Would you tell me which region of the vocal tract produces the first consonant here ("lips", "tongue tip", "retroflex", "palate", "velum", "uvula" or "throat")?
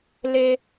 tongue tip